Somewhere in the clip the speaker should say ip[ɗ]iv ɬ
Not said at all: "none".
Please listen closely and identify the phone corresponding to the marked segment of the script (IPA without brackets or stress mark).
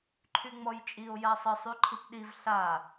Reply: ɗ